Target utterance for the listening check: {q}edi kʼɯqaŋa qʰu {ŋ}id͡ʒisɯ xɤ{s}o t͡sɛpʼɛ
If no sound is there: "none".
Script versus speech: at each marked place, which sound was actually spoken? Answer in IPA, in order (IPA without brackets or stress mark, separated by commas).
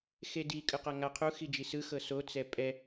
x, x, s